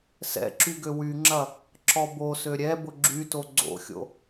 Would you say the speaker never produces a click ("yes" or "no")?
no